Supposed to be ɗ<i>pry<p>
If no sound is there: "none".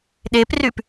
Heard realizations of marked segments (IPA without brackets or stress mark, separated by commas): e, p